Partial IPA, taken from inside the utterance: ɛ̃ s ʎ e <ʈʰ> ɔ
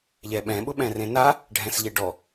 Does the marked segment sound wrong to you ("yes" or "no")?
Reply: yes